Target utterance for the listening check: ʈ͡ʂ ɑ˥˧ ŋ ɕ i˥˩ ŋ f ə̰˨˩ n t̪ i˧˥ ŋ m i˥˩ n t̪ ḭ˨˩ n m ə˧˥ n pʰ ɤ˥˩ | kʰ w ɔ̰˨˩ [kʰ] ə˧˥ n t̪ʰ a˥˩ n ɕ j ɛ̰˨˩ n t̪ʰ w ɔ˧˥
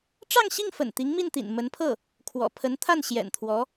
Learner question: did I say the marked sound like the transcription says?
no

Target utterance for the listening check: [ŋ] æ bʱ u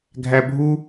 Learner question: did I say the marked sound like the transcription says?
no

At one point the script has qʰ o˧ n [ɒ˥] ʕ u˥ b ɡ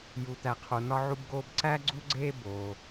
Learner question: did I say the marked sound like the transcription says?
yes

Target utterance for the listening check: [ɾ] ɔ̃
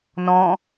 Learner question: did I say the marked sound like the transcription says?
no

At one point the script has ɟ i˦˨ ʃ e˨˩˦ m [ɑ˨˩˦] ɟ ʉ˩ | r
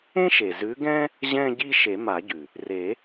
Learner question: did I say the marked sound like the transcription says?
no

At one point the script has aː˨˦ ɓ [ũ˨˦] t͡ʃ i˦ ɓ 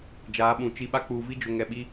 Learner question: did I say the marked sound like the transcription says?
no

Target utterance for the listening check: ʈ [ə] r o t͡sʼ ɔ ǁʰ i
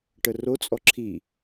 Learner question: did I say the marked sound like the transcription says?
yes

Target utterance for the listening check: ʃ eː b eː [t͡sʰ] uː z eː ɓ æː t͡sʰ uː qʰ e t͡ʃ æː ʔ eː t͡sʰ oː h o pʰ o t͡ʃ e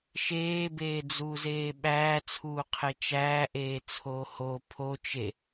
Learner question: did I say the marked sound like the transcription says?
no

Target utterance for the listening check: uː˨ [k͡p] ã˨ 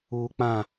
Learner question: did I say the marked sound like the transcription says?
yes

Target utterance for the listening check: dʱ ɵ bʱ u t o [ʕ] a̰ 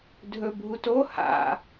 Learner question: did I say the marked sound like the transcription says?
no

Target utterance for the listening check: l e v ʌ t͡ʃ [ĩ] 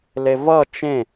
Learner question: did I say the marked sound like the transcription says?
no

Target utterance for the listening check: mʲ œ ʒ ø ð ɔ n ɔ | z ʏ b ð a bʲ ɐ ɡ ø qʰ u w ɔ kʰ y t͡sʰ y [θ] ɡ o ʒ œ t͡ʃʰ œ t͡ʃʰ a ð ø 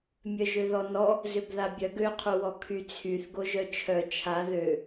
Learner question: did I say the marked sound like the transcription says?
yes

